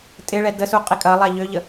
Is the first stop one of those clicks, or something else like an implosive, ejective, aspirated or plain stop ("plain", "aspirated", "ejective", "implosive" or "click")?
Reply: ejective